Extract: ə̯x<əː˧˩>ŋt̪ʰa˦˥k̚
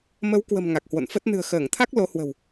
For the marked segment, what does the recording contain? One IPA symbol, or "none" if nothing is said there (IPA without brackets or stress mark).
əː˧˩